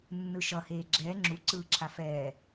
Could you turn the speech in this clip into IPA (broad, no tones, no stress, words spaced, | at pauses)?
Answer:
nːɯʃʌ heːɡ͡ǁɛː ŋ͡ǁu ǀɯːǁʰafɛː